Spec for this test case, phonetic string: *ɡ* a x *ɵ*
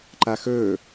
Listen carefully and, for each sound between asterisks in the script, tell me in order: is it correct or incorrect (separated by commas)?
incorrect, correct